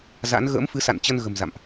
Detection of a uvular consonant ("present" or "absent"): absent